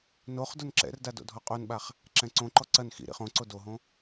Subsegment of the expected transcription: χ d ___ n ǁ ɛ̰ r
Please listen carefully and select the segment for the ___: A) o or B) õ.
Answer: A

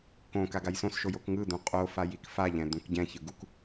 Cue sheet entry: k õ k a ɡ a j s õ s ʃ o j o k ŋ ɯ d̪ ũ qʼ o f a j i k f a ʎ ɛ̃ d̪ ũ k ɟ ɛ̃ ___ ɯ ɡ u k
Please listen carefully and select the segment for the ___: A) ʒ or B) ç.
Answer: B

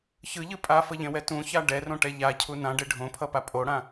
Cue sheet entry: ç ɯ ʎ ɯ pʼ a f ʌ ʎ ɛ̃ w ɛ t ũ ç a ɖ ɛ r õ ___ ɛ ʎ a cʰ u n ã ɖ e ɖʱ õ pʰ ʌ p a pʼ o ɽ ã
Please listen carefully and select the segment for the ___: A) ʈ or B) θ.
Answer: A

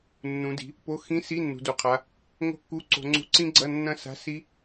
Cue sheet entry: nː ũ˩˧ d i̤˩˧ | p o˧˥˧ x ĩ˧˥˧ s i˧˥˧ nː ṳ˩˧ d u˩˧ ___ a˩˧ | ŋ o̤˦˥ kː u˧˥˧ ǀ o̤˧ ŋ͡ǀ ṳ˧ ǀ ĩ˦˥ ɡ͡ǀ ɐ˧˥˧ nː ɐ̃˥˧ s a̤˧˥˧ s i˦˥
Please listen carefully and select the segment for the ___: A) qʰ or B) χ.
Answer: A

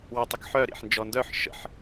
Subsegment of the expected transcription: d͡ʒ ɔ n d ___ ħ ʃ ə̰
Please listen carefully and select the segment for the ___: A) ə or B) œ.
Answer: B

